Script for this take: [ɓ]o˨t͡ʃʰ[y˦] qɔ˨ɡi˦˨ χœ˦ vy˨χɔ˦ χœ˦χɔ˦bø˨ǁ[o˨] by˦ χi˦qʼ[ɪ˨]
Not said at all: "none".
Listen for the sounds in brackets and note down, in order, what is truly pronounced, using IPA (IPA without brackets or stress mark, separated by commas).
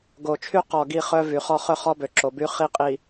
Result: ɡ, y˦, o˨, i˨